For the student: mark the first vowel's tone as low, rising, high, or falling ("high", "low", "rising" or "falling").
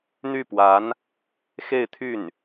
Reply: falling